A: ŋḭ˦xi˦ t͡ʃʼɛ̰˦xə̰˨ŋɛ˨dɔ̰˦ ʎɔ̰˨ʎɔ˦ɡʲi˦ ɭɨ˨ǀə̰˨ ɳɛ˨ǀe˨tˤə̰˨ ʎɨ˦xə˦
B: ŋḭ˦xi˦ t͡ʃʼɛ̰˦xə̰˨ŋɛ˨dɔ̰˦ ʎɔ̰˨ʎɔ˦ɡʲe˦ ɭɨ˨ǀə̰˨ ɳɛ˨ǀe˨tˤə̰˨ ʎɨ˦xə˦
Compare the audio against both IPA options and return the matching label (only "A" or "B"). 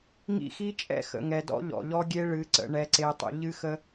B